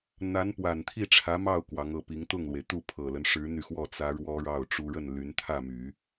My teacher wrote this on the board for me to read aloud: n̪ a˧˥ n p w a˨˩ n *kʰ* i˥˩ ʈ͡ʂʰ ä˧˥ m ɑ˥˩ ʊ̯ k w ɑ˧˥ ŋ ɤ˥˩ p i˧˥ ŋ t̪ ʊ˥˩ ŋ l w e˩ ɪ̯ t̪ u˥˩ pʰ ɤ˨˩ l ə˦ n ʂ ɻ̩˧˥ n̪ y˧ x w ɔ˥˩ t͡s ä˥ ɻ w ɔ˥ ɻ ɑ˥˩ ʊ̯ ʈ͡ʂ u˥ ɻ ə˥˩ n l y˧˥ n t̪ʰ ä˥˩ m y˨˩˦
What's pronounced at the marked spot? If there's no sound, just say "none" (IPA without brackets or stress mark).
t̪ʰ